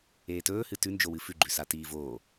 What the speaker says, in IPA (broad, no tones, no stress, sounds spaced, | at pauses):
eː t ɵː h ɨ t ʉ n d͡ʒ o w ɨ f ʉ ɡ͡ǃ ʉ s a t iː v oː